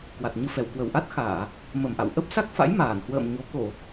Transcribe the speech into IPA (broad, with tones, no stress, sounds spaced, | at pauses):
k w a˨˩ t̚ ɲ ɨ˧ f ɛ˧˩ w k w ə˧˩ w ʔ a˦˥ t̚ x aː˧˩˨ | m ə˧˩ m ʔ a̰˧˨ w ʔ ə˦˥ p̚ s a˦˥ k̚ f a̰˧˥ j m aː˧˩ n h w ə̰ː˧˨ m ɲ o˨˦ k o˧˩˨